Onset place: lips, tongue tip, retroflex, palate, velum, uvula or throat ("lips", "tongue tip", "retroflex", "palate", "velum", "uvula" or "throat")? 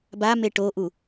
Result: lips